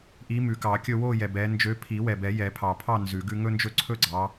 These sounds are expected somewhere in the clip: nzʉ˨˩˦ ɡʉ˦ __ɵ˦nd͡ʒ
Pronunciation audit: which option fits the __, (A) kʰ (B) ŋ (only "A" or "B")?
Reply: B